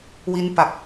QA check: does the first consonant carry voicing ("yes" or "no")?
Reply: yes